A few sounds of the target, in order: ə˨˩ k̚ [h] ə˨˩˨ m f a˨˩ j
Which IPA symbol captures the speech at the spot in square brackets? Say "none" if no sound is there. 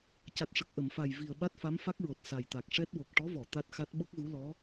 ʔ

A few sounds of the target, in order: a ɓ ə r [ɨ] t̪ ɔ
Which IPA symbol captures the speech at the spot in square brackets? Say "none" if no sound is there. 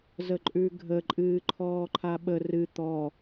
ɨ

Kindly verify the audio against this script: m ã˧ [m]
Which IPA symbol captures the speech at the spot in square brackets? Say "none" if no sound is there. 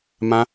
none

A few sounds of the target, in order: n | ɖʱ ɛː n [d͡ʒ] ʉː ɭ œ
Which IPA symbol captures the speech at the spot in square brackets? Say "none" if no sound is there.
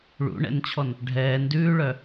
d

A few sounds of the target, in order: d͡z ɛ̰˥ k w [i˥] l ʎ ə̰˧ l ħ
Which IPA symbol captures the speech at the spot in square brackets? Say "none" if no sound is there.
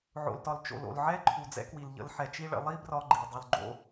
i˩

